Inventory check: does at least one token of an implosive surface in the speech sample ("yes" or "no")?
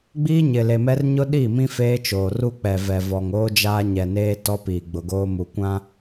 yes